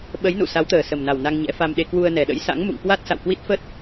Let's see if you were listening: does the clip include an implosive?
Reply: yes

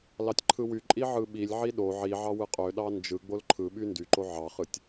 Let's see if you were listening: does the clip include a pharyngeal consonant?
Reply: yes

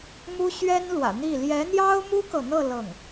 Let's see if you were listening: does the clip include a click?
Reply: no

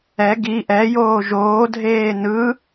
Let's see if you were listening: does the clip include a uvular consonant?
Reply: no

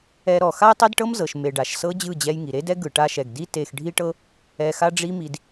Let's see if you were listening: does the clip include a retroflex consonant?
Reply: yes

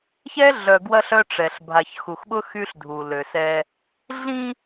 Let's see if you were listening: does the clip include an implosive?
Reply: yes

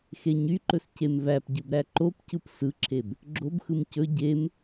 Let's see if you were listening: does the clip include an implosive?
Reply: no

